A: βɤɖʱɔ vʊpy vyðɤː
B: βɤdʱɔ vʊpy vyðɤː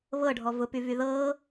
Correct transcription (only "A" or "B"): A